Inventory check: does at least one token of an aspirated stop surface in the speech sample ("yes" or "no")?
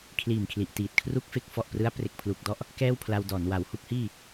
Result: yes